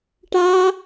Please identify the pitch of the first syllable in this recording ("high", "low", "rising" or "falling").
high